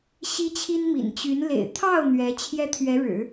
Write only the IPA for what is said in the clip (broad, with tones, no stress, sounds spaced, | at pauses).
ɕ i˥ t͡ɕʰ i˥ n m ḭ˨˩ n t͡ɕ y˧˥ n l ḛ˨˩ ɪ̯ t̪ʰ ɑ˥˩ ʊ̯ n̪ ɥ ɛ˧˥ t͡ɕʰ j ɛ˥ t̪ʰ ɥ ɛ˧˥ ɻ ɻ̩˨˩˦